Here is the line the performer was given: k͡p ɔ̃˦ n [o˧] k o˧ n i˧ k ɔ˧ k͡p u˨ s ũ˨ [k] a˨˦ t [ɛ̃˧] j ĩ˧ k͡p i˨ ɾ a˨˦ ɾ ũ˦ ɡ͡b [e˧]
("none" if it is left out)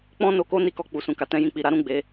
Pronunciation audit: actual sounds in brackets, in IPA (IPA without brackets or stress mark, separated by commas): o˧, k, ɛ̃˧, e˧